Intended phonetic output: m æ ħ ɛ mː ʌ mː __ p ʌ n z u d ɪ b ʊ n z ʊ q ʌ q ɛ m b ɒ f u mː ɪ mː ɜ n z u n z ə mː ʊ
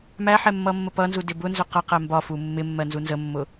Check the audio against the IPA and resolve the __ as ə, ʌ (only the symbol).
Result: ə